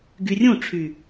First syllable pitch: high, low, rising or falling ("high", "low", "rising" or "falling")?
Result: low